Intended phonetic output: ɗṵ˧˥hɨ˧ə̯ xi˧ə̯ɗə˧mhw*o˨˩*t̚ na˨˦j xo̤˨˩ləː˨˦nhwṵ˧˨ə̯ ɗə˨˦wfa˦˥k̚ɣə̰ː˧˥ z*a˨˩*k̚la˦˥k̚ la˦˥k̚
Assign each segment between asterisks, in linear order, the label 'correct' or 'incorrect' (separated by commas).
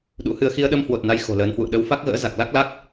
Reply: correct, correct